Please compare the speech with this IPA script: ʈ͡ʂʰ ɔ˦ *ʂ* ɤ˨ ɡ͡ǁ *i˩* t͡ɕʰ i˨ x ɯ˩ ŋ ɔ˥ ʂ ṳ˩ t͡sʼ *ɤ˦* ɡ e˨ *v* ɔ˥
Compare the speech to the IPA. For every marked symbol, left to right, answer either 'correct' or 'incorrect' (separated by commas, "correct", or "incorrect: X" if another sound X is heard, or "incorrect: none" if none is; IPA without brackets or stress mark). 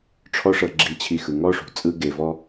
correct, incorrect: i˨, incorrect: ɯ˦, correct